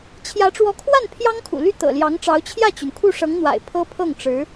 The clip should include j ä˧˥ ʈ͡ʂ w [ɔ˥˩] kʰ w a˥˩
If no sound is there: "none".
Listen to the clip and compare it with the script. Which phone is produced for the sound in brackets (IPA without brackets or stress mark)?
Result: ɔ˧˥